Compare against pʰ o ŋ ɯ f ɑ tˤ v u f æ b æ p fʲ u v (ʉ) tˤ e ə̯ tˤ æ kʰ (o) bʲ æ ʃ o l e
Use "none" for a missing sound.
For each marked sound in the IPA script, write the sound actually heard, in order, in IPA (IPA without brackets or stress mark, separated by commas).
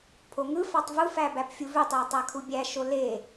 ø, u